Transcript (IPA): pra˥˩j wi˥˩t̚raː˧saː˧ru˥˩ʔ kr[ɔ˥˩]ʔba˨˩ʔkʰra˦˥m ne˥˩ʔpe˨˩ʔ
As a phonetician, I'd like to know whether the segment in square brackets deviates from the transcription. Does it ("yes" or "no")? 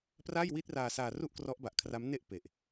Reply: yes